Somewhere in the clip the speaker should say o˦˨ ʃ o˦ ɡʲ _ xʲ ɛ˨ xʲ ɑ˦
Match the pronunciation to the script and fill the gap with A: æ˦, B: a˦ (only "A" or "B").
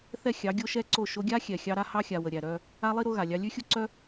B